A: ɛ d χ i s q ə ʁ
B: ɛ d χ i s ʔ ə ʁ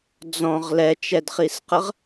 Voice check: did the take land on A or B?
A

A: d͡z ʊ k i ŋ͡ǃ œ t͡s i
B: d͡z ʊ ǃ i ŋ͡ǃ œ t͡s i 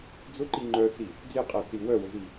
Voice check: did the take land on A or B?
B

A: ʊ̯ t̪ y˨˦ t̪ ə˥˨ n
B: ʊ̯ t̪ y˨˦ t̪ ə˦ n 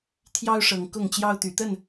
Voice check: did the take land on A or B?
A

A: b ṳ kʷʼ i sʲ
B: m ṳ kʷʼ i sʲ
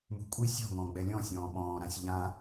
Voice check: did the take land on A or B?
B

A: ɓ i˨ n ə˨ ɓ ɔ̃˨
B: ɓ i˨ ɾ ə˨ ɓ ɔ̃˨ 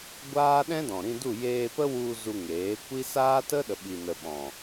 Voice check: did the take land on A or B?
A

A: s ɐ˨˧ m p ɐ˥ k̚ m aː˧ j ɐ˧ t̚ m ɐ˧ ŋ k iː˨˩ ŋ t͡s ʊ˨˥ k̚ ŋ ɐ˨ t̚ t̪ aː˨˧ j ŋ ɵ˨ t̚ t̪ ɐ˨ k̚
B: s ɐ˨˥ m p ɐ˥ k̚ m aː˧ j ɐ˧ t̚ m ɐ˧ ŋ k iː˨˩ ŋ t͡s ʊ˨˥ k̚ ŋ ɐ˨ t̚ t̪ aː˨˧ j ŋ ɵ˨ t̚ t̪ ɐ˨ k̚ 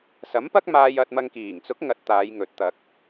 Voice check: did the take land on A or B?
B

